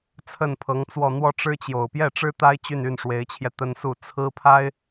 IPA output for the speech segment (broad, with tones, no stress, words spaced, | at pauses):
t͡sʰə˥˩npʰɤ˧˥ŋt͡swɔ˥˧ n̪wɔ˥˩ʈ͡ʂɻ̩˥t͡ɕjo˨˩ʊ̯ pjɛ˥˩ʈ͡ʂɻ̩˥t̪a˥ɪ̯ t͡ɕy˥˧ny˥˩nʂwe˧˥ɪ̯t͡ɕʰjɛ˧ t̪ə˥nsu˥˩ t͡sʰɹ̩˥pʰa˥ɪ̯